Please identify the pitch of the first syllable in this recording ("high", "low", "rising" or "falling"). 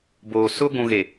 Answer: low